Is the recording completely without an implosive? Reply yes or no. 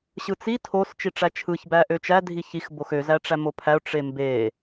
yes